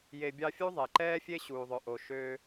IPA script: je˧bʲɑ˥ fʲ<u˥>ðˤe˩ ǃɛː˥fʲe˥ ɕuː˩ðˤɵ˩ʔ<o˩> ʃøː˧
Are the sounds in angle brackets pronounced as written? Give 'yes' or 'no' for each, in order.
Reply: yes, yes

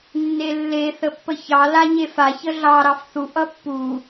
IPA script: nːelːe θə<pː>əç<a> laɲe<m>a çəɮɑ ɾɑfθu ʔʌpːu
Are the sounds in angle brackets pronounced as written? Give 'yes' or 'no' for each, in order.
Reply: yes, no, no

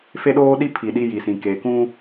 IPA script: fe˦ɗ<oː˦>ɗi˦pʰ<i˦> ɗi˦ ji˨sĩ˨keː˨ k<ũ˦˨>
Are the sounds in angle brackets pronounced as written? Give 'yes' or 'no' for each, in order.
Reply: yes, no, no

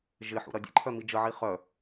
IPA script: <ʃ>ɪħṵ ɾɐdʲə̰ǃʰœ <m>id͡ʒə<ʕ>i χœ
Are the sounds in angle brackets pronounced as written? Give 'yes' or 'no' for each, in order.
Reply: no, yes, yes

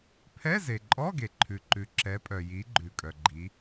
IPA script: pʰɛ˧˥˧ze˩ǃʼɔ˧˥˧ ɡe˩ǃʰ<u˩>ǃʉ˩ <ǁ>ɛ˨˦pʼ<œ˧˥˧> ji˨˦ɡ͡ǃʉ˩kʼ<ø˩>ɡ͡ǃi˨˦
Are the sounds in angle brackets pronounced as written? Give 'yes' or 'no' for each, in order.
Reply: no, yes, no, no

